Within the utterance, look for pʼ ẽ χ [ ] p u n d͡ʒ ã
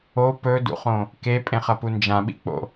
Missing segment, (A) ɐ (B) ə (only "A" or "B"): A